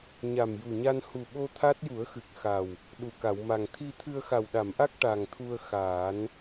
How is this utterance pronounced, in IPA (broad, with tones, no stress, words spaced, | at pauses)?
ɲa˨˩mju˨˩ɲa˧n hu˨˩ɓo˧ t̪ʰa˦˥t̚ju˨˩˦ə̯xɨ˨˩k̚ xa˨˩w | ɗu˨˩ka˨˩˨wma˨˩ŋ t̪ʰi˧t̪ʰɨ˧ə̯ xa˨˩wɗa˨˩˨mʔa˦˥k̚ ʈa˨˩ŋt̪ʰu˧ə̯ xaː˨˩˦n